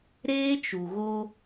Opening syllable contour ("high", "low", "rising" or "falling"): high